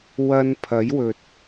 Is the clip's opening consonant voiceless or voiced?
voiced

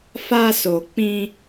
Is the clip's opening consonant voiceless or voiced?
voiceless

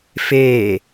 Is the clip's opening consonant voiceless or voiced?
voiceless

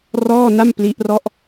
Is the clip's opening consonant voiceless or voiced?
voiced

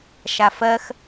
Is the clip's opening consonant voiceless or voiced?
voiceless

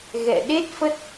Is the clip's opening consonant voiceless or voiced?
voiced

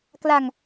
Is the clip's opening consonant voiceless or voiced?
voiceless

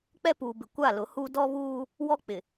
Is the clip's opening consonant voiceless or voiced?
voiceless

